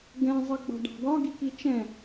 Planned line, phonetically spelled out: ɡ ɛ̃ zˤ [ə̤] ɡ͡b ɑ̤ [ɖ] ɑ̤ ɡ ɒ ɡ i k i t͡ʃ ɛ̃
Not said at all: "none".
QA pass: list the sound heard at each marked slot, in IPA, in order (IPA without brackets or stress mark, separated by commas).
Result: ə, ɖ